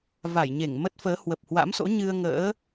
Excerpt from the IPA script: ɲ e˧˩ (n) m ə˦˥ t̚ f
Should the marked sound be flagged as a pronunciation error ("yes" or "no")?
yes